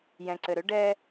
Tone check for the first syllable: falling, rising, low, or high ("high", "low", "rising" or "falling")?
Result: low